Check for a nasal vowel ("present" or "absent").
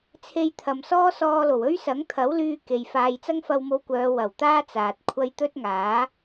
absent